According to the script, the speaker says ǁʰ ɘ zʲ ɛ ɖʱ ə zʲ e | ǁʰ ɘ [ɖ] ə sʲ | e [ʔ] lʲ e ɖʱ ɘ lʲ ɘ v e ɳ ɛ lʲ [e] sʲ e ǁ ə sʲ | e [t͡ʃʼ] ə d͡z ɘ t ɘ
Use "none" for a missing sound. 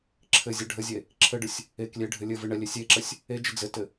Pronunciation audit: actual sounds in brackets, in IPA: ɖ, k, e, d͡ʒ

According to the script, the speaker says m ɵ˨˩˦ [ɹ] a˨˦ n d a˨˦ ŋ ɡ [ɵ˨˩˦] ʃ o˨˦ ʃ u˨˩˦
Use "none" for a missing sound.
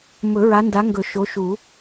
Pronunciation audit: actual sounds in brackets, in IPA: ɹ, ɵ˨˩˦

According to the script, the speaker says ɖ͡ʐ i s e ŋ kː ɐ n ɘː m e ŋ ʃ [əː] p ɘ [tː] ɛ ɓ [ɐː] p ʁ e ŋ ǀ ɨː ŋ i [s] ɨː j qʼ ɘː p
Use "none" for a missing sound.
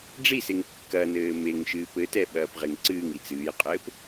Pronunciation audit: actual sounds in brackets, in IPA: ɨː, t, ɐː, t͡s

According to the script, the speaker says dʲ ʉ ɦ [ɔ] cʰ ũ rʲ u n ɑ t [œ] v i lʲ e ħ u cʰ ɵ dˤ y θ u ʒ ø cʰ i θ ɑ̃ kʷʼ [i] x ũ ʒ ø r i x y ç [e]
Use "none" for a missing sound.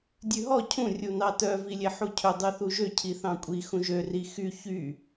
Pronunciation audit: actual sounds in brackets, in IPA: ɔ, œ, i, y

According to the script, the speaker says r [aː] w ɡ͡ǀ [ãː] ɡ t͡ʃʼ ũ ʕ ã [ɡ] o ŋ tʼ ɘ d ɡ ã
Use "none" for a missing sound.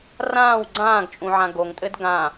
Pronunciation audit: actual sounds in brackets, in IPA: ãː, ãː, ɡ

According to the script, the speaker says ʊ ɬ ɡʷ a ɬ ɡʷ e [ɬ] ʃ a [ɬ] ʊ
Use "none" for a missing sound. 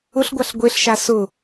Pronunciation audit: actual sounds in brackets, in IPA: ɬ, s

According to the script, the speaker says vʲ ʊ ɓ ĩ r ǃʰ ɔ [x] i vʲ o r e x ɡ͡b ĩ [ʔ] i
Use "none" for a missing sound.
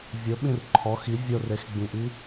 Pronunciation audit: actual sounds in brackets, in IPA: x, ʔ

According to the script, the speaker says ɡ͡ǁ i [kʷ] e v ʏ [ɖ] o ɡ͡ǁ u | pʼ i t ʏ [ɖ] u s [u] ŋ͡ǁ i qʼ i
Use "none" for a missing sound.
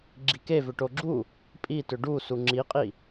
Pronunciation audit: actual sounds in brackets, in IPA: k, ʈ, ɖ, u

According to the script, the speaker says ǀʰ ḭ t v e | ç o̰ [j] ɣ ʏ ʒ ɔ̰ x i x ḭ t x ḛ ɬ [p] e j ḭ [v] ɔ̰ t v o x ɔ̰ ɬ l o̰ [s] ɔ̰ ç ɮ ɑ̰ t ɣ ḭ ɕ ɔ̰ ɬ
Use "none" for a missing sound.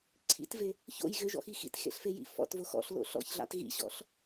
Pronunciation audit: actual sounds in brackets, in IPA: j, f, f, ɬ

